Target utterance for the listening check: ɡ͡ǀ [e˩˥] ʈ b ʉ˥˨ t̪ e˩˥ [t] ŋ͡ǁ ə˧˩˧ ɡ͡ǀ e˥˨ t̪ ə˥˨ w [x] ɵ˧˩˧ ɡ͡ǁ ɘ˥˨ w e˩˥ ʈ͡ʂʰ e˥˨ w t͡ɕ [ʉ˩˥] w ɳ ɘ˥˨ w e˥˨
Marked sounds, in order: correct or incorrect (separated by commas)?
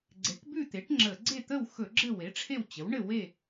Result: correct, incorrect, correct, incorrect